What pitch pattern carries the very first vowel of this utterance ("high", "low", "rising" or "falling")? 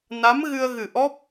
rising